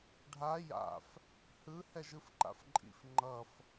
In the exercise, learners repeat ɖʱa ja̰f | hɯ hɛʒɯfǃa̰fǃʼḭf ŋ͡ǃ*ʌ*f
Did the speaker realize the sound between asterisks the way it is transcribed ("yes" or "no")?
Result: yes